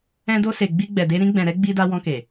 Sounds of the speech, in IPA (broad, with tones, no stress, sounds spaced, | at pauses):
ɛ̃˧ d o˧ s e˨ ɡ͡b i˧ ɡ͡b ɛ˨ d e˧ ɾ ĩ˧ ɡ͡b ɛ̃˨ ɾ ɛ˧ ɡ͡b i˧ d a˧ w ɔ̃˧ k e˨